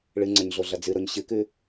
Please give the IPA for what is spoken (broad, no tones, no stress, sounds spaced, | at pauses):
ɭ ɨ ŋ͡ǀ ɐ ɲ ɮ o ɮ ɐ d͡z ɨ ɾ o ɲ ɕ ɨ k ʉ